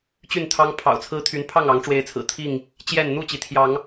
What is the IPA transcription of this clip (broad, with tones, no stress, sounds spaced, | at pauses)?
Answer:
t͡ɕ y˥˨ n t̪ʰ ɑ˦ ŋ pʰ ɑ̰˨˩ ʊ̯ t͡sʰ ɹ̩˦ t̪ʰ y˨˦ n pʰ ɑ˥˨ ŋ ɑ˨˦ ŋ ʈ͡ʂ w e˨˦ ɪ̯ t͡sʰ ɹ̩˨˩ t̪ʰ i˥˨ ŋ | t͡ɕ j ɛ˥˨ n n̪ u˥˨ t͡ɕ i˩ t̪ʰ j ɑ˨˦ ŋ